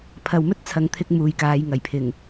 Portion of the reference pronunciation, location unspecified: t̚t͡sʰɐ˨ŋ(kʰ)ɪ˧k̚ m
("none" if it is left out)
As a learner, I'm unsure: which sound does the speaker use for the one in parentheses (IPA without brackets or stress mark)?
t̪ʰ